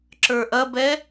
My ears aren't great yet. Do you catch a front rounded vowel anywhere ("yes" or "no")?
no